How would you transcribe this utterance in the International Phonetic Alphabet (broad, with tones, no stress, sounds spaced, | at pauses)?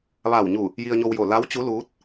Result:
ʋ aː˧˩ w ɲ u˧˩ | j i˧ ə̯ ɲ o˧ w j oː˧˩ l a˧˥ w t͡ɕ u˧˥ l uː˧˥ t̚